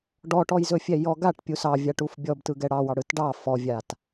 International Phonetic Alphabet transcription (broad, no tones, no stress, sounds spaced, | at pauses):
ɖ ɔ ʈ ɔ j z ɵ fʲ ɛ j ɔ ɡ a ʈ pʲ u s ɑ vʲ a ʈ u f bʲ ɔ b t ɯ ɡ ɛ ɽ ɑ w ɑ ɽ ɯ t ɖ ɑ f ɔ vʲ a t